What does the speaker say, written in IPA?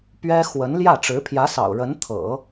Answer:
p ɥ ɛ˥ x w ə˧˥ n l j ä˥˩ ʈ͡ʂ ɻ̩˧˥ pʰ j ä˧˥ s ɑ̰˨˩ ʊ̯ ɻ ə˧˥ n t̪ʰ ɤ̰˨˩˦

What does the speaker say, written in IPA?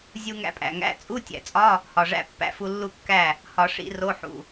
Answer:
zʲ u˧ ŋ æ̰˧ pʼ æ̰˩ ŋ æ̰˧˥˧ t͡sʼ u˧˥˧ tʲ æ̰˩ t͡sʼ ɒ˧˥˧ | h ɒ˩ ʐ æ̰˧ pː æ̰˧ f u˧ lː u˥˩ kː æ˥˩ | h ɒ˨˩˦ ʂ ḭ˨˩˦ r o˧˥˧ ħ ṵ˩

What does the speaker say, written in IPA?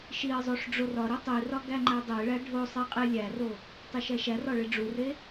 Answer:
ʃ i ə̯ zˤ o ʂ ɖ͡ʐ o r ɒ ɾ i tˤ i r ɒ ɡ æ ŋ͡ǃ æ dˤ e ɭ æ ɖʱ o sˤ i qʼ e lʲ æ r o | tˤ e ʃ æ ʃ æ r ɒ ɭ e ɖ͡ʐ u r e

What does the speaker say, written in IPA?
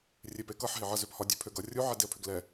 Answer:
rʲ e p e k ʌ ħ ɦ e ʕ ʌ z ø p h ɒ dʲ ø pʰ ø ɡ ʌ rʲ u ʕ ɛ d e ə̯ pʰ ø ɡ l ɛ

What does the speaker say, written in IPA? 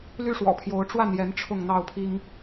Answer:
l y˦ ʂ w ɔ̰˨˩ pʰ j o˨˦ ʊ̯ ʈ͡ʂ w a˥˨ n j ɛ˨˦ n ʈ͡ʂʰ ʊ˥˨ ŋ n̪ ɑ˥˨ ʊ̯ pʰ i˦ ŋ

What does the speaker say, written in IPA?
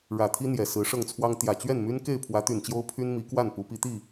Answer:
ɻ ä˨˩ t̪ʰ i˦ n̪ j ɛ˨˩ s ɹ̩˨˦ ʂ ɤ˥˨ ŋ t͡sʰ w ɑ˦ ŋ t̪ j ä˨˩ t͡ɕ ɥ ɛ˥˨ n m y˦ n k e˥˨ ɪ̯ pʰ w ä˨˦ t̪ y˨˩ n t͡ɕ j o˦ ʊ̯ pʰ y˦ n m i˨˦ k w a˥˨ n p u˨˦ p i˨˦ t̪ i˥˨

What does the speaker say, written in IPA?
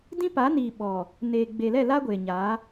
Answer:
d ĩ˦ p a˨˦ n iː˨ ɓ ɔ˨ | n eː˨ ɡ͡b e˨ l ɛ˦˨ l a˦ ɡʷ eː˨ ɲ aː˨˦

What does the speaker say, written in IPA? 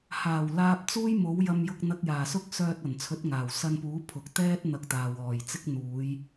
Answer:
h aː˨˩ w l aː˧ p̚ t͡s uː˥ j m o˨˥ w j ɐ˧ m j ʊ˧ k̚ n̪ ɐ˧ k̚ j aː˨˩ s ʊ˥ k̚ s œː˧ t̚ ɐ˨˩ n t͡sʰ ɵ˨˥ t̚ ŋ aː˨˩ w s ɐ˧ n p uː˨˥ pʰ ʊ˨ k̚ t̪ ɛː˥ t̚ n̪ ɐ˧ k̚ t̪ aː˨ w ɔː˨˩ j t͡s ɪ˥ k̚ n̪ uː˨˧ j

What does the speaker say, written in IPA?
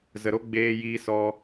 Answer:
z ə˧ ɾ o˦ ɡ͡b eː˧ j iː˧ s ɔ˧

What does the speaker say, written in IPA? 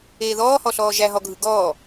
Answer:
eː ð ɔː h ɔ ɬ ɔː ʒ æ ɦ ɔ ɡʱ ɯ ɡ ɔː

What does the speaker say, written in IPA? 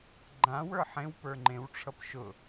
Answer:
ɡ͡ǃ ã w ə˞ ħ ẽ w p ə˞ ŋ͡ǃ ẽ w ʈ͡ʂʰ ʌ p ʃ ʊ

